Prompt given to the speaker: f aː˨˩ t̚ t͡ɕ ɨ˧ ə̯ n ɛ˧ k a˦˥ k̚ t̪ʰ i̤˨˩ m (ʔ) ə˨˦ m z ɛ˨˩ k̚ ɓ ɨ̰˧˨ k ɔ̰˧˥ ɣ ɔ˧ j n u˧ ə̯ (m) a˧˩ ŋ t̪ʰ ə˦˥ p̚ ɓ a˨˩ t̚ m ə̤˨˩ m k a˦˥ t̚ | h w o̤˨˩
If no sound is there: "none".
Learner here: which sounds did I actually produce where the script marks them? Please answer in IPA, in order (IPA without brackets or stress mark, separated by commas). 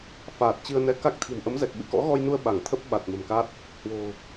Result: ʔ, ɓ